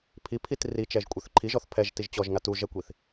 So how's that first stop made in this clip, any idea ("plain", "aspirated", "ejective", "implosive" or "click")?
aspirated